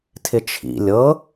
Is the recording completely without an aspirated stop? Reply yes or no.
no